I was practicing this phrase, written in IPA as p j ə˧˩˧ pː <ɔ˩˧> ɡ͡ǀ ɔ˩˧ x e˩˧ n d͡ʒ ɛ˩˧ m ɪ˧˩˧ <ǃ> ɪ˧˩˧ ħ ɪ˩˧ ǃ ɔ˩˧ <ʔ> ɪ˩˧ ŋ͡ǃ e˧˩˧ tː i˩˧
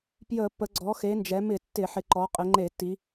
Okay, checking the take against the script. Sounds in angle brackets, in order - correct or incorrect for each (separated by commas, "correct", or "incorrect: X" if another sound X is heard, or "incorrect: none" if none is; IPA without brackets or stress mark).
incorrect: ə˩˧, incorrect: tː, incorrect: qʼ